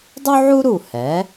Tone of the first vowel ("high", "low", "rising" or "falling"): high